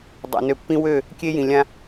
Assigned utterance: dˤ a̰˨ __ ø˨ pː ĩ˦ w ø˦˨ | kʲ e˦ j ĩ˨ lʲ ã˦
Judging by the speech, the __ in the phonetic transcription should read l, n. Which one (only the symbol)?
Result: n